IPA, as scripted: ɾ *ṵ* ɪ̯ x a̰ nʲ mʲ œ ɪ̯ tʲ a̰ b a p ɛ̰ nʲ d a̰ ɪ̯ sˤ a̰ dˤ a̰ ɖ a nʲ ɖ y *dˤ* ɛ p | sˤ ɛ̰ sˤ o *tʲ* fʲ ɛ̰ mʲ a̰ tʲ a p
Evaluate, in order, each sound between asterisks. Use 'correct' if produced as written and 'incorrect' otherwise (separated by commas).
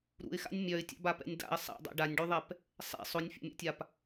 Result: correct, incorrect, incorrect